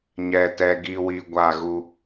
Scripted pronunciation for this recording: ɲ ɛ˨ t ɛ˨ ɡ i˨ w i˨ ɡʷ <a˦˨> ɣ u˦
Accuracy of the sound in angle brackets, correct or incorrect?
correct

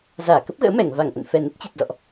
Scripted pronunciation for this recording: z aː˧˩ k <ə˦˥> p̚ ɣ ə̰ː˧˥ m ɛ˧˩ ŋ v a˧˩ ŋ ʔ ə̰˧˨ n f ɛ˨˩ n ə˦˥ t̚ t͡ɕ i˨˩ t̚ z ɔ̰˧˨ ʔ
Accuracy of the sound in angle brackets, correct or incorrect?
correct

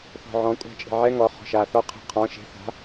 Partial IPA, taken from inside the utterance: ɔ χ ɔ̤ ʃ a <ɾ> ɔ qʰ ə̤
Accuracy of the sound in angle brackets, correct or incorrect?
incorrect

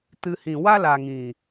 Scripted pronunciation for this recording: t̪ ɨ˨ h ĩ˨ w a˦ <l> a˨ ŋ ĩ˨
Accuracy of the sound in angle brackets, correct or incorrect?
correct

